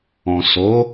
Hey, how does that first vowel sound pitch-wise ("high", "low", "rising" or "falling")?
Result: low